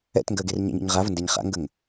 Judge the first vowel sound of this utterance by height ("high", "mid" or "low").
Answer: mid